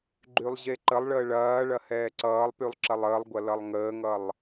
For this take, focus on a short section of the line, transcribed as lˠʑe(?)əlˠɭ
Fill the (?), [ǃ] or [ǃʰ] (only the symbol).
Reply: ǃ